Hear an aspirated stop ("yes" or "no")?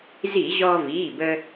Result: no